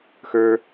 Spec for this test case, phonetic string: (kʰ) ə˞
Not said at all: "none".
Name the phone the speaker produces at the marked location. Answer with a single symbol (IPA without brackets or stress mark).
x